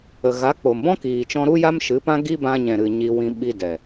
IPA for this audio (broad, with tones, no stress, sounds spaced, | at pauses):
ə˨ ɣ a˨˦ k͡p o˨ m b ɔ̃˦ k iː˨ t͡ʃ ɔ̃˧ ɾ u˦ j a˦ m ʃ ɨ˨˦ p ã˦ ɡ i˦ b ã˧ ɲ ɛ̃˨ ɾ ɨ˨ ɲ i˧ w ĩ˧ ɓ i˧ d ɛ˨